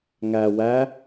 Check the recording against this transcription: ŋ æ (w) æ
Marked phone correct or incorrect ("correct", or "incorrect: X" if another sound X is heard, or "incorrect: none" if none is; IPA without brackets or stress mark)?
correct